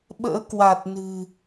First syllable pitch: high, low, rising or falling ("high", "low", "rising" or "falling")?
rising